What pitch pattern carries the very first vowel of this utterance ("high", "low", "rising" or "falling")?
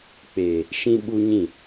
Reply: low